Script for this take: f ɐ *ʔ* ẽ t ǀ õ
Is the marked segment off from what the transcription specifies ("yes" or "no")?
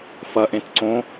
no